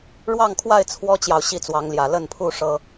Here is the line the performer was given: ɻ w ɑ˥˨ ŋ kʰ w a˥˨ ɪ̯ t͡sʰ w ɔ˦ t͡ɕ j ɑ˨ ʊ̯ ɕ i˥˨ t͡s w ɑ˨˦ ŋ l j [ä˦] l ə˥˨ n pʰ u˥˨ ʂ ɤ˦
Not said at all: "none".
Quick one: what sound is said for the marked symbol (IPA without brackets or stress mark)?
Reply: ä˨˩